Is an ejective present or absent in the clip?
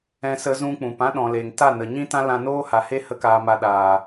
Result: absent